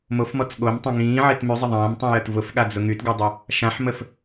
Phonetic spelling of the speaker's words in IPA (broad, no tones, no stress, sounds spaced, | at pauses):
m o f m ɔ t͡s ɠ o m tˤ ə̃ ŋ ĩː ʕ e t m y zˤ ə ðˤ ɐ̃ː m tˤ ĩ j ə t v ʊ f ɠ a d͡z ʊ ŋ y t ɡ o dˤ ʊ | ʃ ã ħ m ə f